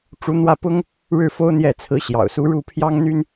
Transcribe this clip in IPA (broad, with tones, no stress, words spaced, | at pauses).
ʈ͡ʂu˧˥n̪wä˥˩pʊ˥ŋ | ɻɻ̩˥˩ fo˥ʊ̯n̪jɛ˥˩t͡sʰɹ̩˧˥ɕjɑ̰˨˩ʊ̯ su˧˥ɻu˥˩pʰjɑ˥ŋ n̪y˥n